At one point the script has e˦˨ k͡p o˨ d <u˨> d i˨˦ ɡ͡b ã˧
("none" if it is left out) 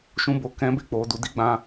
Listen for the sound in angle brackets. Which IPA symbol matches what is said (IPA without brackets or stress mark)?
u˨